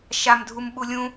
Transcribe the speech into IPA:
ʃ a m dʱ u m ɓ u lʲ ũ

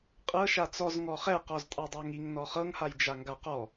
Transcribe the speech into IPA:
qʼ ɤ ʃ a t͡s ɔ z ŋ ɔ χ ɛ q ɔ z tʼ a dˤ a ŋ i ŋ n ɔ χ ɤ ŋ h a j d͡ʒ a ŋ ɡ a q ɔ

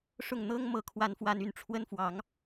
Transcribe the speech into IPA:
ʂ ʊ˥˩ ŋ n̪ ɤ˥ ŋ m ɤ˥˩ kʰ w a˥ n f w a˥ n y˥˩ n ʈ͡ʂʰ w ə˥ n f w ɑ˧˥ ŋ

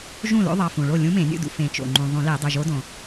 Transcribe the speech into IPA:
ʒ ũ˥˩ l o̰˧˥ ðˤ ɑ˩˧˩ f ũ˩ ɭ o˥˩ lʲ ũ˧˥ m ẽ˨˩˦ nʲ ṵ˥˩ d ṵ˩ f ẽ˨˩˦ t͡ʃ o̰˩ ŋ͡ǃ ũ˩ ðˤ ũ˨˩˦ l e˨˩˦ dˤ ɵ˩˧˩ ʒ o˧˥ d õ˩

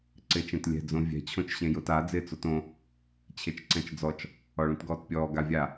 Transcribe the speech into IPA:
ǀ ɪː t͡ʃ ẽ t lʲ ɛ̤ d͡z õ vʲ ɛ̤ t͡ɕʰ õ t͡ʃ ɕ ẽ j ʊ t a d͡z ɪː t͡s o t õ | t͡ɕʰ e t͡ʃ ǀ ɛ̃ t͡ʃ d͡z ɔ t͡ʃ | ɔ ɭ ũ t ɡ ɔː t pʲ ɔː ɡ a vʲ a

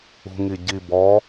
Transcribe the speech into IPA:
ṳ ŋ i ɟ i b ɔ

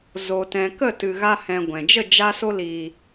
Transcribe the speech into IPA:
z o˨ t ɛ̃˨ k ə˦˨ t ɨ˨ ɣ a˧ h ɛ̃˨ ɡʷ ɛ̃˨ d͡ʒ ə˦˨ d͡ʒ a˧ s o˧ l iː˨

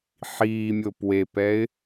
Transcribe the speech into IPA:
ħ iː mʲ o p w e p ɛ ɪ̯

